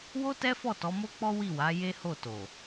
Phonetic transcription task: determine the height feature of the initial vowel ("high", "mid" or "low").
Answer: mid